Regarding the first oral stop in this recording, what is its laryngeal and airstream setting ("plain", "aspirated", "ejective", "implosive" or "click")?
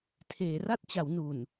aspirated